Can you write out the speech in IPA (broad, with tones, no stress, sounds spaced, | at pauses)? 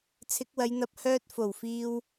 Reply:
t͡sʰ ɪ˨˥ k̚ w ɐ˨˧ j n̪ ɐ˧ p̚ h œː˧ t̚ f o˨˩ w f iː˧ w